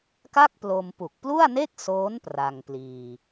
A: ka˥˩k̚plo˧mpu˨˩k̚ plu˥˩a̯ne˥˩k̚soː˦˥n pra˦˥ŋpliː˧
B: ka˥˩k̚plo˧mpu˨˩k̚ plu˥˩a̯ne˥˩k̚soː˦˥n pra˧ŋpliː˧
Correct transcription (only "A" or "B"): B